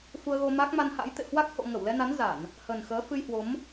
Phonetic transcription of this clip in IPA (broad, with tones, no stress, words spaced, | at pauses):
fu˧ə̯ɣo˧ma˦˥k̚ ma˧nha̰˧˥j t̪ḛ˧˨hwa˦˥k̚ ho̰˧˨ŋə˧˩wlɛ˧na˨˦n za˧˩˨n | hə˨˩nxəː˨˦ fɨ˧jhwo˨˦m